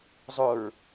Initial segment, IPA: zˤ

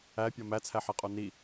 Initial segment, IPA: æ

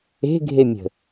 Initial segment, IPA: e̤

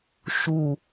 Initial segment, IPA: ʃ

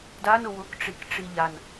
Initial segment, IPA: d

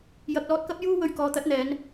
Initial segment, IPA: j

